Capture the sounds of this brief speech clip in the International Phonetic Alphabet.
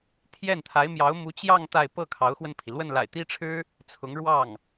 t̪ʰ j ɛ˥˩ n t̪ʰ a˧˥ ɪ̯ m j ɑ˧˥ ʊ̯ m u˧˥ t͡ɕ j ɑ˥˧ ŋ t̪ a˥˧ ɪ̯ p ɤ˥˩ kʰ ɑ˧˥ ʊ̯ x w ə˧ n pʰ i˩ l w ə˥˩ n l a̰˨˩ ɪ̯ t̪ i˥ ʈ͡ʂʰ ɻ̩˥ | t͡sʰ ʊ˧˥ ŋ ɻ w ɑ˥˩ ŋ

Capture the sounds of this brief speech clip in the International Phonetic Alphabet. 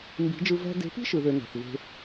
m b i̤˨˦ d͡ʒ ɯ˧ v æ̤˧ d e̤˨˦ p i̤˦ ʃ ɯ˨ ð ø˧ n æ̤˨ θ v e̤˧

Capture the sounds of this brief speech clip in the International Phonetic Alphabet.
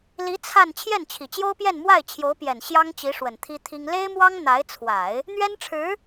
l i˧˥ t͡sʰ a˥˧ n t͡ɕʰ j ɛ˥˩ n t͡ɕʰ i˨˩ t͡ɕ j o˥ ʊ̯ p j ɛ˥˧ n m w a˥˩ ɪ̯ t͡ɕʰ j o˧˥ ʊ̯ p j ɛ˨˩ n ɕ j ɑ˥ ŋ t͡ɕ i˧˥ ʂ w ə˨˩ n t̪ʰ i˥ t̪ʰ i˥ ŋ l e˥ ɪ̯ m w ɑ˥ ŋ n̪ a˧˥ ɪ̯ t͡sʰ w a˨˩˦ ɪ̯ | n̪ ɥ ɛ˥ n ʈ͡ʂʰ ɻ̩˧˥

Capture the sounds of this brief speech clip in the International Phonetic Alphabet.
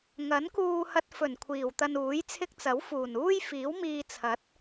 ŋ ɐ˨˥ n k uː˧ h ɐ˧ t̚ f ɵ˨˩ n kʷʰ iː˨˩ w t̪ ɐ˧ n uː˨˥ j t͡sʰ ɪ˥ k̚ t͡s ɐ˨˥ w f uː˨˩ n uː˥ j f iː˨˥ w m iː˧ t͡sʰ ɐ˨˥ t̚

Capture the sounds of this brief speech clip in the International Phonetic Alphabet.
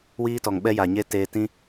w iː˦ t ɔ˨ ŋ ɓ ɛ˦ j aː˨ ɲ e˦ t eː˧ t ĩ˦

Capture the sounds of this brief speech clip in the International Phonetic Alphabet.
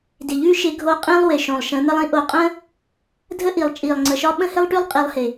d ɪ˨ ʎ ʉ˦ ʃ ɪ˧ ɡʱ o˧ qʼ ĩ˦ lˠ w ɪ˨ ʃ õ˨ lˠ ʃ ə̃˨˦ n̪ ə˦ lˠ ĩ˧ ʔ o˨ qʼ ə̃˦ | dʱ ə˦ ʔ i˨ lˠ t͡ʃʼ i˨ lˠ ŋ͡ǀ ə˨ ʃ ɒ˦ ɓ ə̃˦ h ɪ˦ lˠ ʈ ʉ˦ lˠ qʼ i˧ lˠ h ɪ˨

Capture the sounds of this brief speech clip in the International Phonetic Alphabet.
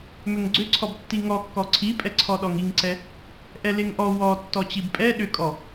m ʏ ŋ ɡ͡ǀ ʏ ǀʰ ɔ b tː i ŋ ɔ kː ɔ ǀʰ i pʼ ɛ ǀʰ ɔ ɗ ɔ ŋ i ŋ ǀ ɛ | ʔ ɛ l e ŋ ʔ ɔ w ɔ tː ɔ t͡ɕ i b pʼ ɛ ɗ ʏ kʼ ɔ

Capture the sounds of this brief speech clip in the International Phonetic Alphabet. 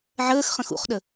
ʕ əː x χ ə̃ x ṵ χ ɗ ə

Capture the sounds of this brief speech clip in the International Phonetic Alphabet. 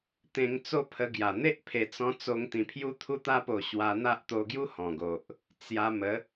t̪ ẽ˧ ŋ t͡s o˦ pʰ ə˧ ɡ j a˨˩ n̪ e˦ ʔ pʰ e˨˩ t͡s ɔ̃˧ t͡s o˧ ŋ t̪ ĩ˨˩ pʰ j u˧ t̪ʰ u˧ t̪ a˧ p o˨˩ ɕ w a˧ n̪ a˦ ʔ t̪ o˧ ɡ j u˦ h ɔ̃˨˩ ɡ o˨ ʔ | t͡s j a˧ m ə˨˦

